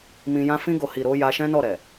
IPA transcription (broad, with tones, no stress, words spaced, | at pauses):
mĩ˧ jã˧fĩ˧ɡo˨hi˨ ɾo˨˦ ja˧ʃɛ̃˦nɔ˦˨ ɾɛ˨